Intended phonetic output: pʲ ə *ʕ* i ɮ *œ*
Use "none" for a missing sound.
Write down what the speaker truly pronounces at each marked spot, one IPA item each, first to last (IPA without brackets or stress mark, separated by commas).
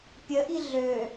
ʔ, ø